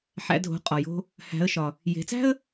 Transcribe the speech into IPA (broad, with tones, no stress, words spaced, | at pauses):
ħæ̰˩˧dʱo̤˩˧qʼɒ˩jo̤˧ | hæ̤˩˧ə̯ʃɒ˩ | je̤˩˧t͡sæ̤˥ə̯